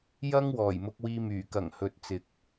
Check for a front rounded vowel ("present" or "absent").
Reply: present